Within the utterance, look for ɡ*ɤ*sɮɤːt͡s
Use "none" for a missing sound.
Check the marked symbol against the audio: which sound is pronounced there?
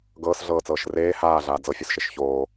ɤː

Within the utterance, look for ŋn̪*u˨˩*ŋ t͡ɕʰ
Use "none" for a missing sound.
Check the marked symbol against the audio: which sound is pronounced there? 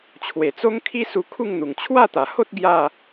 u˨˩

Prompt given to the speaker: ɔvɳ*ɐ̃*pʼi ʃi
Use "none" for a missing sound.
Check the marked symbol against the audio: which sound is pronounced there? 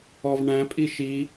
æ̃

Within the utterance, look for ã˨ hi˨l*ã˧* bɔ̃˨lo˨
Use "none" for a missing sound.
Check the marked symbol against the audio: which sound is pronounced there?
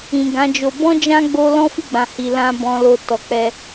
ã˧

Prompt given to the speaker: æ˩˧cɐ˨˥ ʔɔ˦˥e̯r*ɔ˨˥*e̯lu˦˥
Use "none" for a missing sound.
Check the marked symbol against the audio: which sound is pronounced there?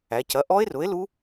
ʊ˨˥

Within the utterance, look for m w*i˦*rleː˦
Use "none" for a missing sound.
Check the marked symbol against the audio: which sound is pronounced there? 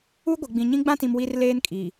i˦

